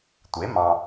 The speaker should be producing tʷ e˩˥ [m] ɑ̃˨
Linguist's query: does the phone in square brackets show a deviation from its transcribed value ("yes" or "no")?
no